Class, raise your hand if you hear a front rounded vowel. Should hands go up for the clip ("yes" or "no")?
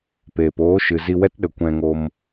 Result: no